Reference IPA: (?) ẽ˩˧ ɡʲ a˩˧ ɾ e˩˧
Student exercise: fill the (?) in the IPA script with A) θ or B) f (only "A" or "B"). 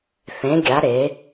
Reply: A